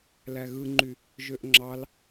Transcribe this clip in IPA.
l æ ɣ ɯ ŋ͡ǃ y | ʒ ø ʔ ŋ͡ǁ ɑ l

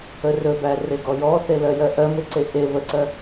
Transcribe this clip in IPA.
ə r ɵ b æ r e ɡ ɔ j ɔ θ e l ɜ j ɜ ʔ ɜ m e ǀ e ʔ e β ə ǀ ɜ

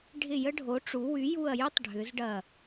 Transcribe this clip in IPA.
ɖʱ ɪ˦˨ j ə˥ ɖʱ o˨˥ ʈ͡ʂ u˨˥ w y˨˥ j u˦˨ ɐ̯ j y˥ tˤ ɖʱ ʏ˨˥ z ɖ ɐ˦˨

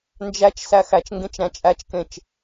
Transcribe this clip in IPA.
n d͡ʒ æ t͡ʃ s æ x æ t͡ʃ ŋ ɡ ẽ t͡ʃ ɾ æ̃ t͡ʃʼ æ t͡ʃ k ẽ t͡ʃ

